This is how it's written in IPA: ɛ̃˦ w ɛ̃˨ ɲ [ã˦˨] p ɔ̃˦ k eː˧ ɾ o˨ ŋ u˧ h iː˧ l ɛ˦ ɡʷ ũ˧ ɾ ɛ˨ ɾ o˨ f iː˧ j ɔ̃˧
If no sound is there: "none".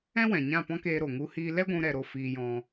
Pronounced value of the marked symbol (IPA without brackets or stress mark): ã˦˨